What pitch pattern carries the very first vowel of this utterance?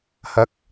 rising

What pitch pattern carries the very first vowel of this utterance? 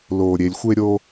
low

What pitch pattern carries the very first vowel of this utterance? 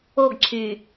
falling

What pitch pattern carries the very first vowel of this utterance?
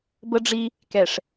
high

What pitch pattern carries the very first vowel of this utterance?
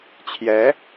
rising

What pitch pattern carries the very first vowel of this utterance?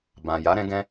low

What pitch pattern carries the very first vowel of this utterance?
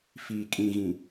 low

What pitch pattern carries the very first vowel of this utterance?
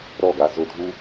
falling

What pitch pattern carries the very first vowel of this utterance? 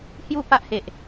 falling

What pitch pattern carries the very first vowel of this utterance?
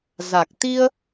low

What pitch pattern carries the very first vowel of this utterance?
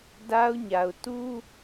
high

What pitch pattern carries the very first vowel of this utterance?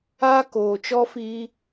high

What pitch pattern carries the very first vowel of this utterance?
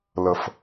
low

